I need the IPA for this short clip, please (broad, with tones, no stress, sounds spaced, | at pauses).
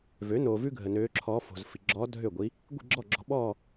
v ø˩˥ n oː˨ v ʉ˥ ɡʱ ə˨ n øː˧˥ ǁʰ ɔː˧˥ f o̤˨ z f i˨ ɡ͡ǁ ɔː˧˥ dʱ ø˥˩ ɡʷ i˧˥ | ɡʷ i̤˥˧ ɡ͡ǁ ɔ˥˩ ɡ͡ǁ ɔ̤˧˥ ɓ ɔː˥˧